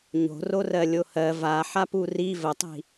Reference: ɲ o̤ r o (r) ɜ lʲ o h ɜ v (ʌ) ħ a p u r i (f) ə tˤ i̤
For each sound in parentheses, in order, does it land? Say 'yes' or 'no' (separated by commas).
yes, no, no